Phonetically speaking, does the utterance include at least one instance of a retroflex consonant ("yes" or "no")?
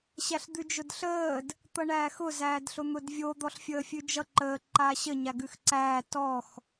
yes